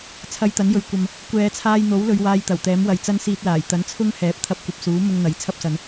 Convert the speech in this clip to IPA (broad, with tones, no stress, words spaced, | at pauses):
t͡sʰɐ˧jt̪ɐ˨˥njɵ˨ɥkʷɐ˨m | kʷɛː˨˧t͡sʰaː˧jn̪o˨˥wlɵ˨˧ɥ waː˧jt̪ɐ˨˩wt̪ɛː˨˥m wɐ˨jt͡sɐ˥nsiː˧t̚laː˨˩j t̪ɐ˨˥nt͡sʰʊ˥ŋ hɛː˨˥p̚t̪ʰɐ˧p̚kʷɐ˨p̚suː˨˥ mʊ˧ŋ n̪ɐ˨˥jt͡sʰɐ˥p̚sɐ˨˧n